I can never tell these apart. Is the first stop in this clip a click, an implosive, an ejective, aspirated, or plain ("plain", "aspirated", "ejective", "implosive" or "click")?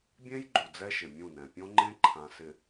plain